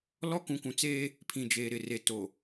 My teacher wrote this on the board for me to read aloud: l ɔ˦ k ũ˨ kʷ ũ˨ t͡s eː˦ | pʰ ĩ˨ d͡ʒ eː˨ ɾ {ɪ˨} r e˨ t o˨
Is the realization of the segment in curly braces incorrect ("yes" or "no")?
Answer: no